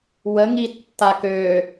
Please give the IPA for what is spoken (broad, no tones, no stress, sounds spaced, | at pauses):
w ə ŋ i tː a k ø